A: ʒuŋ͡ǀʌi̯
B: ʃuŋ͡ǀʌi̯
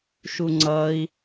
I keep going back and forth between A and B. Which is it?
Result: B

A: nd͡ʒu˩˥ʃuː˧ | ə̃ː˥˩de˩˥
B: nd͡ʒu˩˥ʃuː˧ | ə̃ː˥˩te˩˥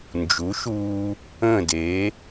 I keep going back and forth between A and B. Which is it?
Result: A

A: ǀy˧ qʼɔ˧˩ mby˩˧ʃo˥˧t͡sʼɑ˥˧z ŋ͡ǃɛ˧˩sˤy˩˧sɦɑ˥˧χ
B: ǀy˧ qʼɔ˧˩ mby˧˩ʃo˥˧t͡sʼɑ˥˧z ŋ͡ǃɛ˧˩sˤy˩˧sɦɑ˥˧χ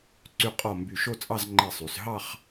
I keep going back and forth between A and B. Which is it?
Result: B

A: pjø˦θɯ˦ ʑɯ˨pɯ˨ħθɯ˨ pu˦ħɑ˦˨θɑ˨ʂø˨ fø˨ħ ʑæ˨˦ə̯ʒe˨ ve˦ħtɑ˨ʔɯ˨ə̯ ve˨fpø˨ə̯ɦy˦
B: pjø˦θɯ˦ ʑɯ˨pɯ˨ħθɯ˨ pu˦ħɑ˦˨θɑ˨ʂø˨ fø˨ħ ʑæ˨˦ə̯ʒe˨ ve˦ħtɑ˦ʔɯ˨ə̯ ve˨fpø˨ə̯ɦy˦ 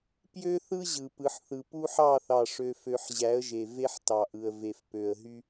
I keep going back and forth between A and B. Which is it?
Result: A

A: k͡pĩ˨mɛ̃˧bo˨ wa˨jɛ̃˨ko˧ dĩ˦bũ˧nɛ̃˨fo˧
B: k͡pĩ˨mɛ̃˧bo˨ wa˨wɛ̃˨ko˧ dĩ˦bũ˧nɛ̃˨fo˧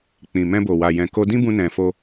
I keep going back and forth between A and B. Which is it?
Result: A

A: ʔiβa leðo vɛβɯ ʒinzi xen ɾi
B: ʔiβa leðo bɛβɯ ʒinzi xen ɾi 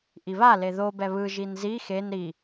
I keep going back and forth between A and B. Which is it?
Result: B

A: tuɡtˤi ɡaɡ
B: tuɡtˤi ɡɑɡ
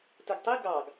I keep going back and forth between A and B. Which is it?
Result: B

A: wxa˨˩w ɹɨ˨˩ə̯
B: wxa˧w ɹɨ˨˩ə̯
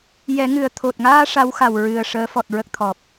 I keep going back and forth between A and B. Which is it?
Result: A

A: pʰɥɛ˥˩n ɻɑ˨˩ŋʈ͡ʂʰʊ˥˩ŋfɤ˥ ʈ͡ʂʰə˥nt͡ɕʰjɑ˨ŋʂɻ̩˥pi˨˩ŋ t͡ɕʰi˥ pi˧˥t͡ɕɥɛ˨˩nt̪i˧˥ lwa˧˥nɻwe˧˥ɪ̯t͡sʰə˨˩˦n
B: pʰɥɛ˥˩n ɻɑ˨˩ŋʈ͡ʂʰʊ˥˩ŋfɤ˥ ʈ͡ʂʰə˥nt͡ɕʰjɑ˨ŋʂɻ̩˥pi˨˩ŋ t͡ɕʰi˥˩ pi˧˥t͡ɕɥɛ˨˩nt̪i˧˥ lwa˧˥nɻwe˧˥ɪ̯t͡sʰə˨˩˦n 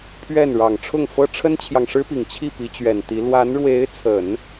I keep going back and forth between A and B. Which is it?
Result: B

